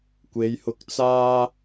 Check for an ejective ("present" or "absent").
absent